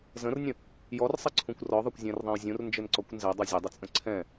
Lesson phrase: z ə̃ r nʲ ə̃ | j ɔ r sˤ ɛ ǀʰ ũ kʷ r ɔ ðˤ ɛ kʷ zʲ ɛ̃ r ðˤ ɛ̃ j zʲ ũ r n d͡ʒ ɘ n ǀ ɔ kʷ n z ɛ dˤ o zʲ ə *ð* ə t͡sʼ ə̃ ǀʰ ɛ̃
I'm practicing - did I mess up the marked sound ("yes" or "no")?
yes